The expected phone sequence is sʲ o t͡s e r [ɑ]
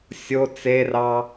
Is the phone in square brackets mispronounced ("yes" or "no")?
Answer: no